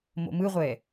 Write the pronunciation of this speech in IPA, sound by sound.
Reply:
mo̰mɯʁʷɛ

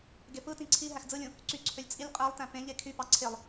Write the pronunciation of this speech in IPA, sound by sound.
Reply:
ɡepɯtĩ ǀʰi ɦæxd͡zɯlʲũ | ǀyǀʰølʲ t͡sʼilʲ qʼælˠtæ̃ pẽʎe kʰypɑ ǀʰelˠ

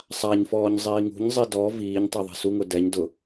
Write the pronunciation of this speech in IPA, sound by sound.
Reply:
sˤaɲfɔːɲ zˤiːŋṳɲzˤi dɔ viːɲtˤi ðˤe̤suŋʊ dɛɲ dʊ

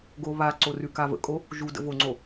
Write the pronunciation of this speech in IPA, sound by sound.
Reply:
ɡo βaǀo rʉkavə̰kʼo | ʒudə̰ voŋ͡ǀo

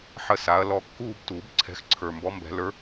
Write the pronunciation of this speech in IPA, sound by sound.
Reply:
ħə˥˧sa˨˥ɐ̯lɔ˥˧ kːuː˥˧btuː˨˩˦bǀʰɛ̤˨˥x ǀʰə˞˨˩mbɔ˨˥ mbɛ̤˨˩˦ lə˞˨˥

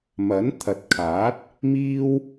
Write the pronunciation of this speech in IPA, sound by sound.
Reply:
mɐ˨˥nt̪ʰɐ˨t̚ kʰaː˨˥t̚ | miː˥w

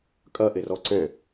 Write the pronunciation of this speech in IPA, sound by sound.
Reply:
kʼɐʔerɔ ǀɛ̃

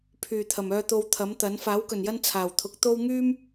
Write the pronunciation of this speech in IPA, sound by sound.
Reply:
pʰyː˨˩t̪ʰɐ˨˩m œː˨t̪o˨˧w t̪ʰɐ˨˥mt̪ɐ˨˥n faː˨˥wkɵ˨˩njɐ˥n t͡sʰaː˨˩wt̪ʰʊ˨˥k̚t̪o˥w ŋyː˥m

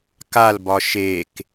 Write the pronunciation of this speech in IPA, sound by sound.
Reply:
kalbɒ ʃek

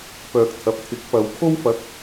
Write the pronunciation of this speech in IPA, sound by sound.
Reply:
pœː˨k̚t̪ʰɐ˨p̚t̪ʰɪ˨˥k̚pɐ˨˧w kʰo˥wfɐ˨˥k̚

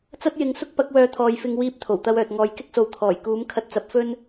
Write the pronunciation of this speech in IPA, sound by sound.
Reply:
t͡sɐ˥t̚jɪ˨˧ŋ sʊ˥k̚pɐ˨˥k̚wœː˨˧ t̪ʰɔː˨˧jfɪ˧ŋ wiː˧p̚ t̪ʰo˨˩wt̪ɐ˧wœː˨t̚ŋɔː˨˧j kɪ˥k̚so˨˧w t̪ʰɔː˨˩jkuː˨˥m kʰɐ˧t̚t͡sɐ˨˥p̚ fɵ˥n

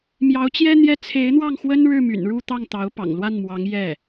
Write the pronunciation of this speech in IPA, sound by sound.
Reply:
mjɑ˧˥ʊ̯t͡ɕjɛ˥n̪jɛ˥˩ t͡sʰe˧˥ɪ̯n̪wɑ˥˩ŋxwə˥n ɻɻ̩˥˩my̰˨˩nɻu˥˧t̪ɑ˥˩ŋ t̪ɑ˧˥ʊ̯pɑ̰˨˩ŋlwa˥˩nmwɑ˧˥ŋ jɛ˥˩

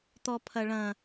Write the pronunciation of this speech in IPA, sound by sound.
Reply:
t̪ɔpʰɐɭɐ̃

